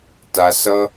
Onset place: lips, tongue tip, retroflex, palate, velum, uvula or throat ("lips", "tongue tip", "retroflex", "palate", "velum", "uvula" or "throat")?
tongue tip